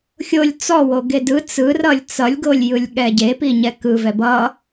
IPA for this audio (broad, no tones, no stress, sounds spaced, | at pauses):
xʲ o lʲ t͡s ɔ w o ɡ e d ɯ t͡s ɯ r ʌ lʲ t͡s ʌ lʲ ɡ o lʲ j ɯ lʲ ɠ ɛ ɟ e p i ɲ ɛ k ɯ v ɛ b ʌ